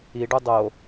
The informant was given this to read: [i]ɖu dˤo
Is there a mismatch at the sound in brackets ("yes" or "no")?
no